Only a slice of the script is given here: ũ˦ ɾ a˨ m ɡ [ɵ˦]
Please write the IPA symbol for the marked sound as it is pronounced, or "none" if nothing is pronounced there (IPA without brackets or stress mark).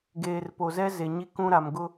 ʊ˦